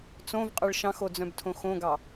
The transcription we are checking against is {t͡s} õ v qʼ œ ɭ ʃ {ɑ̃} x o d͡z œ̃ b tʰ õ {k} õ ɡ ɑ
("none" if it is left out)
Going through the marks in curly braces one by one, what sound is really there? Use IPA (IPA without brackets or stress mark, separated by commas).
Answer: t͡s, ɑ̃, x